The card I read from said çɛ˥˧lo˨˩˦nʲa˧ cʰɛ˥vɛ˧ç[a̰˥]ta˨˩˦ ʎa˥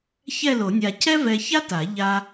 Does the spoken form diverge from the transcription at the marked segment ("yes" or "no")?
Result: yes